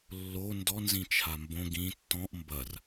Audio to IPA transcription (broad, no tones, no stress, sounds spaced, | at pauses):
lː o n d ɔ n z ĩ t͡ʃʰ a m b õ ɡ ĩ tː ɔ̃ ʔ m b ɐ r